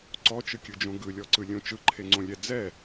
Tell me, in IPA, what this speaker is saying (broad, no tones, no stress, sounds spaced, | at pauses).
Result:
ǀ ɔ t͡ʃ ɯ kʲ ɯ d͡ʒ õ ɡ ɯ lʲ ɔ ǀ ɯ lʲ õ t͡ʃ ɯ ǃʰ e ŋ͡ǀ õ lʲ ɛ d͡z ɛ